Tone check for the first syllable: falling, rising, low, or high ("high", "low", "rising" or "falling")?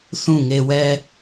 falling